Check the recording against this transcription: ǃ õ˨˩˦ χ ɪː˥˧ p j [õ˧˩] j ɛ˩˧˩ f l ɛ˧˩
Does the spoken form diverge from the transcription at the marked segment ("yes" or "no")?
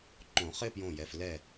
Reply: no